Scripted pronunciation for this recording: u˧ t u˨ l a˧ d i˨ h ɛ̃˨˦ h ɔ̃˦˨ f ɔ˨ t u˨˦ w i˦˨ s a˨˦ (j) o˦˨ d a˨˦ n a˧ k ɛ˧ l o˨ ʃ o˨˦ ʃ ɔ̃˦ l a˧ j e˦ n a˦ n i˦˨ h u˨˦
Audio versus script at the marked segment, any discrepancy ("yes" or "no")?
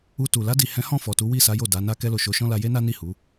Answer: no